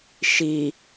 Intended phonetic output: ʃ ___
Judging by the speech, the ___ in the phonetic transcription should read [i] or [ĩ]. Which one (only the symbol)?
i